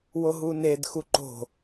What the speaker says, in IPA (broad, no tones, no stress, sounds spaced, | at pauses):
w o ɦ u n e d x u ǃ o̤